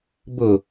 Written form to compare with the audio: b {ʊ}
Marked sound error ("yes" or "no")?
no